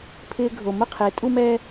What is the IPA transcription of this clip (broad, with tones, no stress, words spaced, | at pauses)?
pʰɪː˧ɡʱo˨ mʊ˦qʰɪː˨˦ tʼu˦mɛː˦